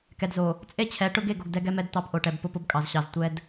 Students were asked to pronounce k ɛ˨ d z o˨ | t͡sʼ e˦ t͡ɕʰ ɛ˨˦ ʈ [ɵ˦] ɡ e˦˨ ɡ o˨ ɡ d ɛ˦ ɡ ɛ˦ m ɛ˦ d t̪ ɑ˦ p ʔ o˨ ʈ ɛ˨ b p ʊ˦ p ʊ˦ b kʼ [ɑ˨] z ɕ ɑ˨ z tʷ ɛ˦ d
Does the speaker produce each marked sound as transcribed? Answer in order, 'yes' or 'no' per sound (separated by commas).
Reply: no, yes